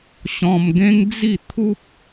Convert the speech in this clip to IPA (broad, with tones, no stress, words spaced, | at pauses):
ɕɔ̃˧mɡẽ˦ŋd͡zi˥˧ t̪ʰu˦p̚